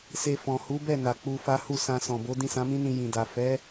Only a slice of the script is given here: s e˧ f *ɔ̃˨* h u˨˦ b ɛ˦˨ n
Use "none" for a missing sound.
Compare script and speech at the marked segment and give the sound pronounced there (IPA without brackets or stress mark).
ɔ̃˨